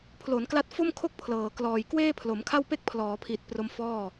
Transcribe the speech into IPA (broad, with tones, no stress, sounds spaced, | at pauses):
pʰ l o˩˦ n k l a˦˥ t̚ f o˥˩ m kʰ o˥˩ k̚ pʰ l ɤː˩˦ k l ɔː˨˩ j k w eː˥˩ pʰ l o˩˦ m kʰ a˥˩ w p e˥˩ k̚ pʰ l ɔː˩˦ pʰ i˨˩ t̚ p r o˧ m f ɔː˥˩